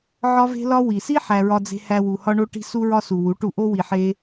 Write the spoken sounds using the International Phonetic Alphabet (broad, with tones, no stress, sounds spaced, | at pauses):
ʕ ɒ˦ v e̤˦ l ɒ˦ w i˨ s i˦ ħ æ˧ ɹ ɒ˧ d͡z e̤˧ h æ˧ w u˨ h ɒ˧ ɳ o˧ ʈ i̤˧ s u˧ ɹ ɒ˧ s u˨ w u˨˦ ʈ u˧ ʔ o˦ w i˧ ħ e˦